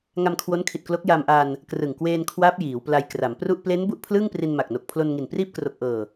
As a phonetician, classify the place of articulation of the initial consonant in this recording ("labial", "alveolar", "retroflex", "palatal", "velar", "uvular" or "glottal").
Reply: velar